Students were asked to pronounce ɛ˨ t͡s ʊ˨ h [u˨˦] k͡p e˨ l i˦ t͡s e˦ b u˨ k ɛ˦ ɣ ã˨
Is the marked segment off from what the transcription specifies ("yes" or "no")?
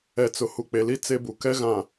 yes